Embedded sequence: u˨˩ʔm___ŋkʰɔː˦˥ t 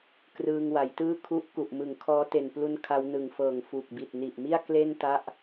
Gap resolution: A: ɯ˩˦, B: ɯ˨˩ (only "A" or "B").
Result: B